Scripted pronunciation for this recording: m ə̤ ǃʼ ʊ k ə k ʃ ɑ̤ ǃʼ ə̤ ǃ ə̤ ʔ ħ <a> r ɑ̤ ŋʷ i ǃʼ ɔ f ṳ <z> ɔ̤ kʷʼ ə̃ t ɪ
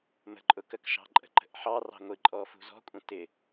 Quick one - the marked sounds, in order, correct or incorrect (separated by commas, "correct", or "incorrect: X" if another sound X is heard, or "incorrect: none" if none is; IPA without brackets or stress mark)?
incorrect: ɑ, correct